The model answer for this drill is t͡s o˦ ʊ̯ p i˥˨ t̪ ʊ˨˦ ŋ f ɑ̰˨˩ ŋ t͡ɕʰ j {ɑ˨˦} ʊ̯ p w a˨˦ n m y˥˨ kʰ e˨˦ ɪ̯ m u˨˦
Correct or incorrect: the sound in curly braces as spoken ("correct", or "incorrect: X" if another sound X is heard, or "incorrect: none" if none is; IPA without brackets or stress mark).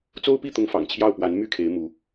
incorrect: ɑ˥˨